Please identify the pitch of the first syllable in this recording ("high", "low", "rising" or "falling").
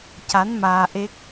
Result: rising